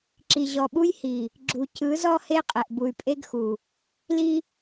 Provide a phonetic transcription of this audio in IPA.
ǁ i˨ ʑ ɔ˨ ɓ u˦ j h i˨ | ɡ͡ǁ u˨ c ɯ˨˦ z ɔ˦ h e˦ qʼ ɛ˨ ʔ b u˨ y̯ pʼ e˦ ɡ x u˨ | l i˦

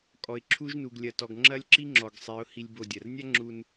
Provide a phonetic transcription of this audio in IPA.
kʼ ɔ˨ ɪ̯ ǁʰ u˦ ʒ n u˧ ɡ lʲ ɐ˧ t ɔ˧ ɡ ŋ͡ǁ ɐ˦ lʲ ǁ i˦ ŋ͡ǁ ɔ˨ ɡ sˤ e˨˦ ʊ̯ h i˧ lʲ b o˧ dʲ ɐ˨ r nʲ a˦ ŋ͡ǁ u˧ n

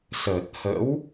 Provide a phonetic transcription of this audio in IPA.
s ə˨˩ t̚ h ə̰˧˥ w

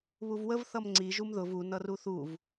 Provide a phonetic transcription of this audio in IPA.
β u v w ə v θ ʌ m ŋ͡ǀ i ʒ u m ð ʊ v u n ʌ r u θ u v

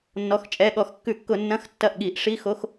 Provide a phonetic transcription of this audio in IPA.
nː ɔ˩˧˩ x t͡ʃʼ ɛ˩˧˩ ɠ ɔ˧˩˧ x kː ʉ˧˩˧ kː ʊ˧˩˧ nː ɐ̃˧˥˧ x tː ɐ˥˩ ʔ ɠ i˧˩˧ ʔ ʂ i˧˥˧ x o˧˥˧ x

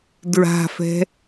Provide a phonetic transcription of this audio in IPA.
d ɹ a̤ f ɛ̤

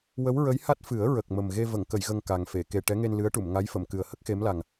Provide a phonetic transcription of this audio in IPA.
w ə˧˥ w ɹ ə˧˥ j h a˦˥ t̚ f ɨ˨˩˦ ə̯ ɹ ə˨˩ k̚ m ə˨˩ m ɣ e˧ v ə˨˩˨ ŋ k ə˨˩˨ j ɣ ə˨˩ ŋ k a˨˩ ŋ f e˨˩˨ k e˨˩ ʈ ɛ˧˥ ŋ e˧ n l ɨ˧˥ ə̯ ʈ u˨˩˨ m ŋ a˧˥ j f ə˨˩˨ m k ɨ˨˩ ə̯ h ə˦˥ k̚ x e˧˥ m l a˨˩ ŋ

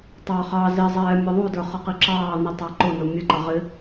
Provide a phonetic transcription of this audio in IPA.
tˤ ɑ χ ɑ z i zˤ ɛː mʲ ʌ ðˤ u d ə˞ χ ʌ q i ǁ ɑː n i tˤ ɑ ǃ ʊ n ʊ mʲ ə ǃ ʌ ʁ ɪ

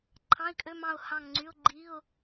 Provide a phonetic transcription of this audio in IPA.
ǃʰ ɑ̃˧˥˧ ɪ̯ kʼ ø˧˥˧ m ɑ̃˦˨ ʊ̯ h ɑ̃˦˨ ŋ ŋ͡ǀ y˧˥˧ ʊ̯ ɡ͡ǃ i˧˥˧ ʊ̯

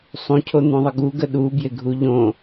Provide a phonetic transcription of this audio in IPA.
sˤ ũ cʰ o n̪ ũ ðˤ ə ɡ u ɡ ə ɗ u b j ɪ ɡʱ u ʎ õ

